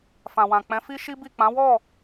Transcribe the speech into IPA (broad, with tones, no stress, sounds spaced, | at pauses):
f ã˨ w ã˨ k͡p ɛ̃˨˦ f i˦ ʃ i˦ b i˦˨ k͡p ã˨˦ w ɔ˦˨